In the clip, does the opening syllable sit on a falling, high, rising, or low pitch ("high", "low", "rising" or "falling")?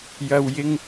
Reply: low